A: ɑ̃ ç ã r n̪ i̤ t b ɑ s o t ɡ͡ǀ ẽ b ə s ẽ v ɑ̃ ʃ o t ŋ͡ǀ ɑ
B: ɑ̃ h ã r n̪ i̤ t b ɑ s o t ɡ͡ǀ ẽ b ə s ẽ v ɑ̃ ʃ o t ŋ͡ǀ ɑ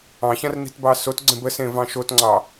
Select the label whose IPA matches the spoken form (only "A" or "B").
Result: A